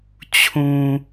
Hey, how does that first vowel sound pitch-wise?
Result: low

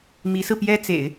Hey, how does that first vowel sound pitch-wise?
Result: rising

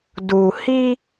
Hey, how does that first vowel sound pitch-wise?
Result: low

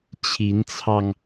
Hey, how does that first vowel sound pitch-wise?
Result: rising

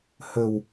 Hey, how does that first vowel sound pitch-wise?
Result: low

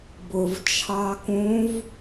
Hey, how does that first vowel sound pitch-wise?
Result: low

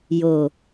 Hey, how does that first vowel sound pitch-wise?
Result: low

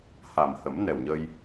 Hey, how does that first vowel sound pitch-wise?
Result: low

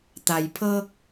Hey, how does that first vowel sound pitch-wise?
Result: low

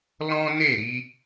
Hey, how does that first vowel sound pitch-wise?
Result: high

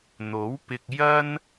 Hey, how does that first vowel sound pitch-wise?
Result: rising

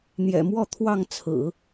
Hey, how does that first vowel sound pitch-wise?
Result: low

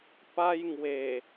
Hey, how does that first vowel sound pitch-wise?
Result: high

